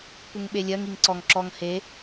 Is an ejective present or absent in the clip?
absent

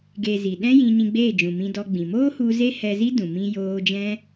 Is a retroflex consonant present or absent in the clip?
absent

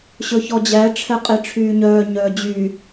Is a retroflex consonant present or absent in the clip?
present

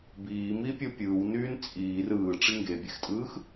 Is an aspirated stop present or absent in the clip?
absent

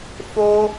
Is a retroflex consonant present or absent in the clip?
absent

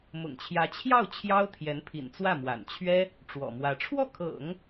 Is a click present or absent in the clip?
absent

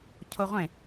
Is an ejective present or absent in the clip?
absent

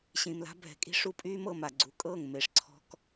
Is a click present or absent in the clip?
present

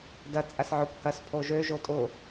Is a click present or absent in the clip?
absent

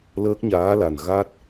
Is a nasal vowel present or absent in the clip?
absent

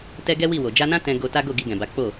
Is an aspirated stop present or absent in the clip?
absent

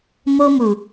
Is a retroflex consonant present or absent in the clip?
absent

